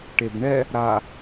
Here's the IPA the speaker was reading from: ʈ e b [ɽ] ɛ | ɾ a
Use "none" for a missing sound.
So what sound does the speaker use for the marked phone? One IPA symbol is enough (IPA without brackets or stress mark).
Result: ɳ